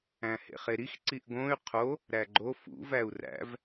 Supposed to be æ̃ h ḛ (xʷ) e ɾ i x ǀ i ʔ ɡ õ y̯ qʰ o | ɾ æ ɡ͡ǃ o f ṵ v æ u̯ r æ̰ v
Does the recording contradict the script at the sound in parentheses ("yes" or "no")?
yes